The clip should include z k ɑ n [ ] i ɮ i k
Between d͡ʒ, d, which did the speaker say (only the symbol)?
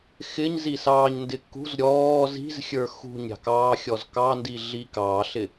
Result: d